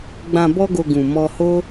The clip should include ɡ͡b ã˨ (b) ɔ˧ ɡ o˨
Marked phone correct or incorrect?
correct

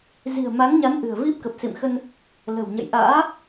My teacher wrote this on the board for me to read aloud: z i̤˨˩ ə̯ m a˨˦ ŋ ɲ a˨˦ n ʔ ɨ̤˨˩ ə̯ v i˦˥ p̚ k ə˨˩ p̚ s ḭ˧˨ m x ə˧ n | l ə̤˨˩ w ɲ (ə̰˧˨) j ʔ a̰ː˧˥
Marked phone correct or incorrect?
correct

